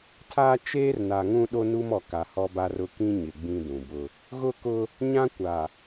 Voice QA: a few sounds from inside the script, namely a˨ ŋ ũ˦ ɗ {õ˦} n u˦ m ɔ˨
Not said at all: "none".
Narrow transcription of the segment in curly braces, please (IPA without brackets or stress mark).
o˦